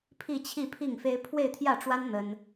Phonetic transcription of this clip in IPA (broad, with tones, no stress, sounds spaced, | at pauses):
pʰ i˥˧ t͡ɕʰ i˥˧ pʰ i˥˩ ŋ f e˥ ɪ̯ pʰ w e˥˧ ɪ̯ t̪ʰ j ä˥˩ ʈ͡ʂ w a˥ n n̪ ə˥ n